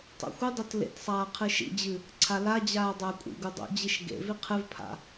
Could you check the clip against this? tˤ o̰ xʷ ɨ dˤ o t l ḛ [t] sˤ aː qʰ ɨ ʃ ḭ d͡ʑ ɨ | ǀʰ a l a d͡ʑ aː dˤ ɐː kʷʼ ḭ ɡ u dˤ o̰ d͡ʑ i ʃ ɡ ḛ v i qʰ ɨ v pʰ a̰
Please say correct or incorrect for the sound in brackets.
correct